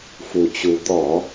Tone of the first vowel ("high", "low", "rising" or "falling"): low